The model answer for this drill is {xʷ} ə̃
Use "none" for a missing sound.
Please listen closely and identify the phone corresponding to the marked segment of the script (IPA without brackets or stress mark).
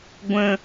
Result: ɡʷ